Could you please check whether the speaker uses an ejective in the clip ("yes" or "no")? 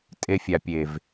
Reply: yes